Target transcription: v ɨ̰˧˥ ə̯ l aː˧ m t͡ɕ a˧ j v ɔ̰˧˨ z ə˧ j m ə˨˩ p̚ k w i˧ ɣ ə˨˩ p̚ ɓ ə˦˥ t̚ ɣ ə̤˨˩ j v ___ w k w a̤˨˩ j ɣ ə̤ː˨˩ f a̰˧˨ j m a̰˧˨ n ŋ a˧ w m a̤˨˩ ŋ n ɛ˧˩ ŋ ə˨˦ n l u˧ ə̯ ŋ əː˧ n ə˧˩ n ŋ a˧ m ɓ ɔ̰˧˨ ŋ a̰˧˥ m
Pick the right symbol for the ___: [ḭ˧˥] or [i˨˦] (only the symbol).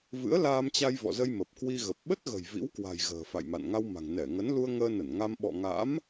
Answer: ḭ˧˥